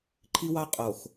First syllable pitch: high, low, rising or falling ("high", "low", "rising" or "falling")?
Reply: high